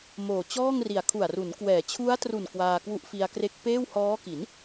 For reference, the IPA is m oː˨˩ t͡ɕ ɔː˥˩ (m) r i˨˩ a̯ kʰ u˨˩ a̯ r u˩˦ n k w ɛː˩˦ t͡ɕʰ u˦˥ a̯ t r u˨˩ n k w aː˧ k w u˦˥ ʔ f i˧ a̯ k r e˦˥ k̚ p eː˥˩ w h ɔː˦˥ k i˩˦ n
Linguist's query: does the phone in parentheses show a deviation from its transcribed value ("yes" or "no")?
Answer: yes